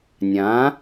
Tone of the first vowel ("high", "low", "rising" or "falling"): rising